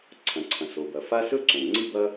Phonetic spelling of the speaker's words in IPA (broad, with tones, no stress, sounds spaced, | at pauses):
ǀʰ ɐ̃˩ ǀʰ ɐ̃˩ s o˩ b ɐ˩ f a˥ s ɵ˥ ǀ õ˩ ŋ͡ǀ i˥ b ɐ˥